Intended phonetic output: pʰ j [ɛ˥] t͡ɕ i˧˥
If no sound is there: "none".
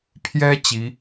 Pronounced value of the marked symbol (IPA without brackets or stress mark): ɛ˥